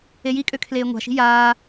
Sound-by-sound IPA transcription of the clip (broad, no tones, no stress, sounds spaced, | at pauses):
e j i kʼ ø kʰ l eː ŋʷ a̤ ʃ i̤ j aː